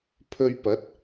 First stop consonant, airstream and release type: aspirated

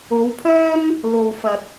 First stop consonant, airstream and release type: aspirated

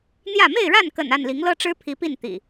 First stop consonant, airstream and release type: plain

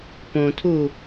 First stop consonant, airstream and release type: plain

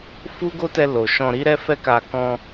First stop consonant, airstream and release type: plain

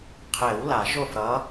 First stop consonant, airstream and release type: aspirated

